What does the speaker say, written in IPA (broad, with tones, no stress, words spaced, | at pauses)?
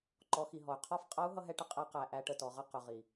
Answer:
ǃɔ˩˧xi˩ ɦɔ˩y̯ qʰɒ˧˥fqʼʌ˧˥u̯ ɦʌ˥ɦɛ˧˥ʈə˧˥ qʼɛ˧˥qæ˩˧ ʔæ˧˥ʈə˧ tɔ˩˧ʁʌ˥ qʊ˩˧ʁi˩